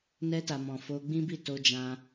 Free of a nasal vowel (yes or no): no